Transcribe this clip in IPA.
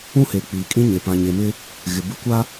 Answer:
ũ˦ h e˨ k͡p iː˨ kʼ ĩ˦ ɲ e˨ p ã˨ ɲ e˨ m ɪ˦ | ɣ ɪ˨ b ɪ˦ kʷ a˦

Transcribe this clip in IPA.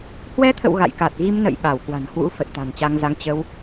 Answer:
h w ɛ˧ t̪ʰ ə̰˧˨ w ɣ a̰˧˨ j k a˨˩ t̚ ɣ i˧ m n ə̰˧˨ j ɓ a˧˩ w k w a̤˨˩ n h w ṵ˧˥ f ə˨˩ t̚ t̪ a̤˨˩ n t͡ɕ a˧ ŋ z a˧ ŋ t͡ɕ ə˧ w

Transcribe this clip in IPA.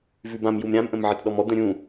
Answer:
v ʉ b ã m j u m ɾʲ ã m ʔ ə̃ m ʕ ə t ɗ ɔ m ɔ d̪ ə̃ ɾʲ ũ

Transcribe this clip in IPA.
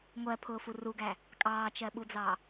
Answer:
ŋʷ ɜ pʰ ʊː f u r u ɡ æ | kʼ ɑː t͡ʃ ɜ ɓ u d͡z ɑ

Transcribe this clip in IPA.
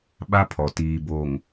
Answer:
ɓ a˦ pʰ ɔ˨ t iː˨ b o˨ ŋ

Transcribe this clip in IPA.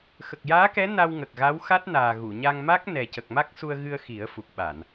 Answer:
x ə˨˩ k̚ j aː˧˥ k ɛ˧˥ n a˧ w ŋ ə˨˩ k̚ ɣ a˧˥ w x a˦˥ t̚ n aː˨˩ ɣ u˨˩˨ ɲ a˧ ŋ m a˦˥ k̚ n ɛ˨˩ c ə˨˩ k̚ m a˦˥ k̚ s u˧ ə̯ ɣ ɨ˧ ə̯ x i˨˩˦ ə̯ f u˨˩ k̚ ɓ a˨˩˨ n

